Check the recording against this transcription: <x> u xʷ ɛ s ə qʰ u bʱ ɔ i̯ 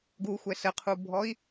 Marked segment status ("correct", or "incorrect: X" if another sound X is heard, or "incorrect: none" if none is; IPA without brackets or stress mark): incorrect: ɡ